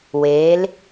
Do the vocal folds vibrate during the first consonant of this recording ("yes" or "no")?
yes